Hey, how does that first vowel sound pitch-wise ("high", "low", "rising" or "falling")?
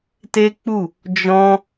high